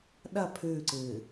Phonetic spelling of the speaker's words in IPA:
ɗ ɐ pʰ ʉː ǀ ɨː

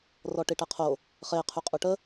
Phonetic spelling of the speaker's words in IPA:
r ɔ ʈ i ʈ ɛ qʰ o | χ e qʰ y qʼ u ʈ ə

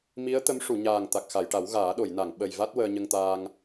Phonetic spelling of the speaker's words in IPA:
m i˧˥ ə̯ t̪ ə˧˥ m ʂ u˨˩˨ ɲ aː˨˩ ŋ t̪ a˨˩ k̚ x a˨˩˨ j ʈ a˨˩˦ w ɣ aː˨˩˦ ɗ o˨˩˨ j n a˨˩˨ ŋ ɓ ə˨˩ j v a˦˥ t̚ w əː˧ ɲ ə˧ ŋ t̪ aː˧ ŋ

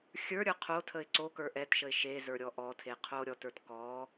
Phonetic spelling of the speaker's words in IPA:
xʲ ə˞ ɾʲ ə˞ qʰ o tʰ ə ɪ̯ ǀ o k ə˞ ʔ ɛ t ʃ ə ɪ̯ ʃ e z ə˞ ɾʲ ɔ ʔ ɔ tʰ e qʰ o ɾʲ ɔ t ə˞ t k ɔ

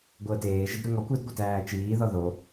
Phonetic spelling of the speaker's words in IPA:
ɡʷ əː t eː ʒ ɪ d ɾ u ŋ ɔ kʷ ɪ d ɡʷ ɪ t æː t͡ʃ iː ð ɔ ð o

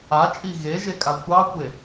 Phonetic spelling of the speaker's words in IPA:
a t͡ʃʼ i ɣ e ʒ e kʼ a kʷ ɑ kʷ e

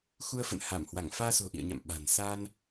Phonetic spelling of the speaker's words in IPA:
x u˧ ə̯ f ə̰˧˨ n h a˧˩ m h w a˧˩ ŋ f aː˧ s o̤˨˩ ʔ ḭ˧˨ ə̯ ɲ a̰˧˨ m ɓ a̤˨˩ n s a˧ n

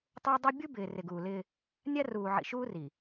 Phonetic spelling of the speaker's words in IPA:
tˤ ʊː˦ dˤ i˦ bʲ u˦ b ɪː˨ r ɪ˨ ɡ uː˨ l ɪː˦ | nʲ a˦ r uː˨ ʕ ḭ˨ ʃ uː˦ r i˨

